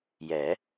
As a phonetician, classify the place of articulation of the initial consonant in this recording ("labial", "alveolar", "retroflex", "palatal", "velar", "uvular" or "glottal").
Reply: palatal